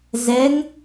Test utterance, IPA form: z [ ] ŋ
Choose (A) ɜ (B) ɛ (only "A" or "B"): B